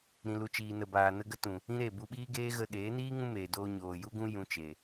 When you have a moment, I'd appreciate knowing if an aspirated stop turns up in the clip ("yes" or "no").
no